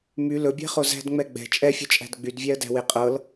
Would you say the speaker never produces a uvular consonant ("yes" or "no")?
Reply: no